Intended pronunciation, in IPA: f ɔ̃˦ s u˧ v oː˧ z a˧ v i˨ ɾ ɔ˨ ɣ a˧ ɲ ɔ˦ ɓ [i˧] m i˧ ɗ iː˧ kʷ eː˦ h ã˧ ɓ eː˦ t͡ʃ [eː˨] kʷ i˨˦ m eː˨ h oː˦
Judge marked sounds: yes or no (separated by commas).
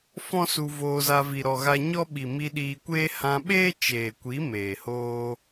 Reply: no, yes